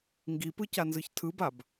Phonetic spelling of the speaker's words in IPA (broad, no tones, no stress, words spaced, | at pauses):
ŋɡipɯcanzɯç tʰɯbab